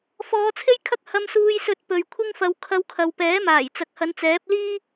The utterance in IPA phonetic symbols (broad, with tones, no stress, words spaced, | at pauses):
fɔː˨˧t͡sʰe˥jkʰɐ˥k̚ hɐ˧msuː˧jsɵ˧t̚ pɵ˨ɥkʷʰɪ˥ŋfɐ˧w kʰɐ˧wkʰɐ˨wpɛː˨˥maː˨˩j t͡sɐ˨k̚hɐ˨˧nt͡sɛː˨˥p̚ liː˥